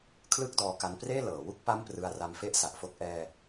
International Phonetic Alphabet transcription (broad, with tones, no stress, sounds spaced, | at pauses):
kʰ l ɯ˥˩ k̚ d ɔː˦˥ k a˦˥ n p r eː˥˩ l ɤː˩˦ w u˥˩ k̚ p a˥˩ m p r ɯ˧ a̯ r a˧ m f e˦˥ ʔ s a˨˩ ʔ f o˥˩ k̚ ʔ ɛː˧